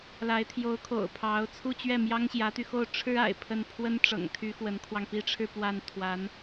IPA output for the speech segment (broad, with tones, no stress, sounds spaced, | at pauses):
l a˧˥ ɪ̯ t̪ʰ j o˧˥ ʊ̯ kʰ o̰˨˩ ʊ̯ pʰ ɑ˧˥ ʊ̯ t͡sʰ u˥˧ t͡ɕ ɥ ɛ˥˩ m j ɑ˥ ŋ ɕ j ä˧˥ t̪ y˧ x o˥˩ ʊ̯ ʈ͡ʂʰ ɻ̩˥ a̰˨˩ ɪ̯ pʰ ə˥˩ n pʰ w ə˥ n ʈ͡ʂ ɤ̰˨˩ ŋ t̪ʰ y˧˥ x w ə˧˥ n kʰ w ɑ˧ ŋ p i˥ ʈ͡ʂʰ ɻ̩˥˧ p w a˥˩ n t̪ʰ w a˧˥ n